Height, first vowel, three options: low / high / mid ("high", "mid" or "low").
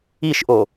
high